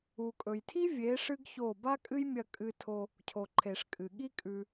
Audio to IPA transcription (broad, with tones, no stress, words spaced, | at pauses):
u˨kʼɵ˨jtʰi˦ vʲe˨˦ ʂɨ˦ɡço˦˨ ba˦ kʼɨ˦jmʲɐ˧ kʼɨ˧tʰo˧ | cʰo˨ǃʰe˨ʂkʼɨ˨ ɠi˦kʼʉ˧